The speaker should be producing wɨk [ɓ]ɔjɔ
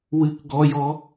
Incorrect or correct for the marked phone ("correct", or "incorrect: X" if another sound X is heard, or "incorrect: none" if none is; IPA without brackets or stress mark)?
incorrect: ɡ